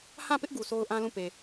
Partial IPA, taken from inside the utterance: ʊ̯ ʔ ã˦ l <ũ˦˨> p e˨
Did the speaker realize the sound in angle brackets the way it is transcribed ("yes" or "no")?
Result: yes